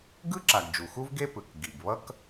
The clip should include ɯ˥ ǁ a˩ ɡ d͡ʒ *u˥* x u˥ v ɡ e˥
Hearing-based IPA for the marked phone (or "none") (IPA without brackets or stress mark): u˩